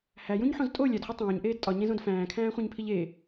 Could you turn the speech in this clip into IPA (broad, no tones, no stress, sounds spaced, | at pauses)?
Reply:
h æ j ũ ɲ ħ õ z tʼ o lʲ æ d χʷ i tˤ õː ɲ ʔ eː d tʼ ɒ ɲ ẽ z õ d f æ̃ː kʰ æ̃ː χʷ ẽ ɲ pʰ i ʎ e